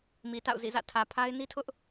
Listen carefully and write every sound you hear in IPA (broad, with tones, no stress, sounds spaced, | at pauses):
m i˨ t a̰˦˨ ʊ̯ z ḭ˦˨ z ä̰˦˨ tʰ ä˨ pʰ a˦ ɪ̯ n i˦ tʰ ʊ˦ ʔ